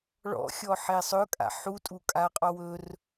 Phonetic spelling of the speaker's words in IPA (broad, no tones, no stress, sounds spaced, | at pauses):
ɭ ɔ̰ xʲ ɔ ħ e sˤ ɵ kʼ a̰ ħ u tʼ u kʼ a qʼ ɔ w ɵ r